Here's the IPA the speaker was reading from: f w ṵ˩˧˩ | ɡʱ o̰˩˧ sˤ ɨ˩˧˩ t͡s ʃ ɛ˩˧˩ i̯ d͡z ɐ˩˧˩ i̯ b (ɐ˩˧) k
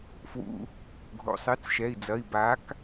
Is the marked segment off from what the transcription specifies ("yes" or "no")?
yes